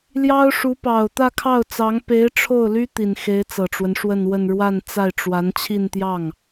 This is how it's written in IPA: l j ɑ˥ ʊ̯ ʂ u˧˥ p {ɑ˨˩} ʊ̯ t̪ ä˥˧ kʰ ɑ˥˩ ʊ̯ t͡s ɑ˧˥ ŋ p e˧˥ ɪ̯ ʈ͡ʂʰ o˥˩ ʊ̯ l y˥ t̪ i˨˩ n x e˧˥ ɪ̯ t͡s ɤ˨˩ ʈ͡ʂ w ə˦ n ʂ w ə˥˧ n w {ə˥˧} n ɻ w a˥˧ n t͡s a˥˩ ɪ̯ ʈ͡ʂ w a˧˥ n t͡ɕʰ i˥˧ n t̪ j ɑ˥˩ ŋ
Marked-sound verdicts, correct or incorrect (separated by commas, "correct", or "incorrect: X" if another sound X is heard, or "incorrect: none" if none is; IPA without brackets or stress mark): correct, correct